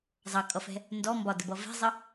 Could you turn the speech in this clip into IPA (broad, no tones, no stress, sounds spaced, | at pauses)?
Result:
zˤ ɑ kʼ ʌ f ɛ̤ | n d ɔ m b ɒ d ə b ʌ v ɛ̤ zˤ ə